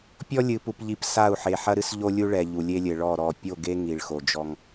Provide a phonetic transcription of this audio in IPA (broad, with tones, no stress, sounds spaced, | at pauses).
pʲ ɔ˦ lʲ ɨ˨ p u˨ p ʎ i˨˦ p s a˦˨ u̯ ħ e˨ ħ ɐ˦ ɾ ɨ˦ s ʎ o˦ lʲ u˦ ɭ ɛ˨ ʎ u˨ lʲ e˦ lʲ ɘ˨ ɭ ɔ˦˨ ɾ ɔ˨ pʲ o˦˨ ɡ e˦ ŋ i˨ ɭ x o˨ d͡ʒ ɔ˦ ŋ